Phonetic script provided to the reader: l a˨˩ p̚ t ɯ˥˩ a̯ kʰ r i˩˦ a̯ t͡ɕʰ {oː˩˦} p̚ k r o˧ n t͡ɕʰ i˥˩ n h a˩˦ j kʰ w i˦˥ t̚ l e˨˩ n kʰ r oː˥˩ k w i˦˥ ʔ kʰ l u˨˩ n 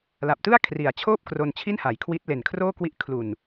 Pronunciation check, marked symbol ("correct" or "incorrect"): incorrect